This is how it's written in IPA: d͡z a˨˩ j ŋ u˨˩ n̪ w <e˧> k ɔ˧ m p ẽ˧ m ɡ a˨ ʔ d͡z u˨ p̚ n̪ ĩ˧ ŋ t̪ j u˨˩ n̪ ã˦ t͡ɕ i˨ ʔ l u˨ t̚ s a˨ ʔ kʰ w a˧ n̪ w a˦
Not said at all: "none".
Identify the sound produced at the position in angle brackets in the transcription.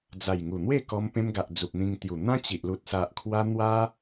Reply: e˥˧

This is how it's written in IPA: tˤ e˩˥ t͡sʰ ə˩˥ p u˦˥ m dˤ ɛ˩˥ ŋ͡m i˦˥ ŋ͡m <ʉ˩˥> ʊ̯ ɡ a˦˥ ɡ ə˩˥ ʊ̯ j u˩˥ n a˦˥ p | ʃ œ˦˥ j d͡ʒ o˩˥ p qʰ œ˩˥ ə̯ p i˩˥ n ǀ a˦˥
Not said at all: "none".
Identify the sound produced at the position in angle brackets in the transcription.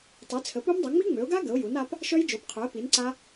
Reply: ø˩˥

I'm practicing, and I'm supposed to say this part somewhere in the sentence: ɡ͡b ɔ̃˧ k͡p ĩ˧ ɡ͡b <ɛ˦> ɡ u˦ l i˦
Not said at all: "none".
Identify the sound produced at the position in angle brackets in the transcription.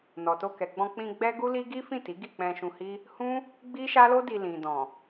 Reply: ɛ˦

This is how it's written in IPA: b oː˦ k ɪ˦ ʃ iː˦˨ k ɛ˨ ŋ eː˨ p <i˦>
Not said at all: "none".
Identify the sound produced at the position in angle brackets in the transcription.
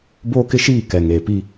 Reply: i˦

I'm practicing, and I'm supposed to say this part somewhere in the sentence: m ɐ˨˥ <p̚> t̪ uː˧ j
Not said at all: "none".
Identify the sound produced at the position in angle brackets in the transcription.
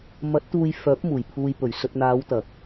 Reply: t̚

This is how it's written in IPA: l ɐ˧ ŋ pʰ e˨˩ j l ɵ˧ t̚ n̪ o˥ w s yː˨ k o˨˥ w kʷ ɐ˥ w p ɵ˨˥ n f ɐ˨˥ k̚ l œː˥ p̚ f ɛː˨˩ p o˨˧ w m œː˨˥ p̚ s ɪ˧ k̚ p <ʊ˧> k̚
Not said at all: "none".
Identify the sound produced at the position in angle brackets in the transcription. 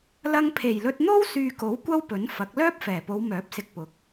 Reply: ʊ˨˥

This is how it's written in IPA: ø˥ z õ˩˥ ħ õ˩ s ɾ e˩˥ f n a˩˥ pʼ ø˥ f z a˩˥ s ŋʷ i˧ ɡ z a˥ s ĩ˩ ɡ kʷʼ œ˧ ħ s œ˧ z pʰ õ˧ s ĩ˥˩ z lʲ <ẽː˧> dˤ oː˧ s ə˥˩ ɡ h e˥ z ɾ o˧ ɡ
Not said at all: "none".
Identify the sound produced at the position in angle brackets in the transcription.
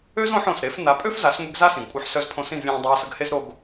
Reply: ẽː˧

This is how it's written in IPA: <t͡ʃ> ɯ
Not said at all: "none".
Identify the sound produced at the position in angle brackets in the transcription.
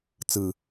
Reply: t͡s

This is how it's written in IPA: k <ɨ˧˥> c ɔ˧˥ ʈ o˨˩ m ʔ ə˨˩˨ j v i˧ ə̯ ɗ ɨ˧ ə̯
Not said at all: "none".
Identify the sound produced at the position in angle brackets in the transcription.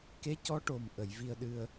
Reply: e˧˥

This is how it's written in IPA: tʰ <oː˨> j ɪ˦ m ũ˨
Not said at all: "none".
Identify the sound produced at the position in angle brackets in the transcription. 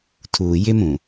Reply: uː˨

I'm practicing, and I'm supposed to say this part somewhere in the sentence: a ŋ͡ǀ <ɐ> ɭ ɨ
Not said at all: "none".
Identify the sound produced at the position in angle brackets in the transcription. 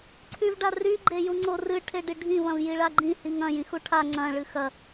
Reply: ɐ̃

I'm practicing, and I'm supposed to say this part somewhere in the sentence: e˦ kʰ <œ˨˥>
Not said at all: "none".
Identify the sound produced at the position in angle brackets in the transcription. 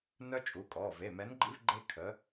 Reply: ə˨˥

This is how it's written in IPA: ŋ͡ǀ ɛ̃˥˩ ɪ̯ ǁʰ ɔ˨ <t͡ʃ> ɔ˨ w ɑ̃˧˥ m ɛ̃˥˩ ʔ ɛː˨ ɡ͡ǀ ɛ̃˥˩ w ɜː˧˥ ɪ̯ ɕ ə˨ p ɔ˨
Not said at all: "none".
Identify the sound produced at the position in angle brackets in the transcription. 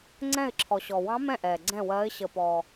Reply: ɕ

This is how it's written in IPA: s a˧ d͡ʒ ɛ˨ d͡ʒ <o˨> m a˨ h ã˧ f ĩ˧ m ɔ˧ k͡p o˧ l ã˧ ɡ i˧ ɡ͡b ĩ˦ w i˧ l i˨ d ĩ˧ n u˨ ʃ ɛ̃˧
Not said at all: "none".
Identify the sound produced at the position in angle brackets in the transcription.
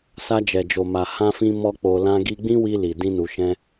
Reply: o˨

